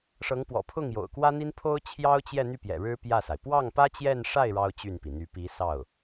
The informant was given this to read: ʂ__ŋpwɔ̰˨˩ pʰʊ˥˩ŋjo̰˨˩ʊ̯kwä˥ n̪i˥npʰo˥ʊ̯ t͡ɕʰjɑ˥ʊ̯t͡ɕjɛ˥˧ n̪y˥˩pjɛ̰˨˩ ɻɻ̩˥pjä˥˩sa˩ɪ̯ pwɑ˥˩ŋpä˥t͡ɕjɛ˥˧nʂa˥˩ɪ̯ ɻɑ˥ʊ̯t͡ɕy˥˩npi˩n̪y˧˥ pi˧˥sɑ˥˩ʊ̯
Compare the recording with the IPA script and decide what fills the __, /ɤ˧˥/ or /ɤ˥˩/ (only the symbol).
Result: ɤ˧˥